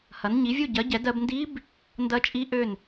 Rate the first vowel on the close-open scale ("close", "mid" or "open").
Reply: open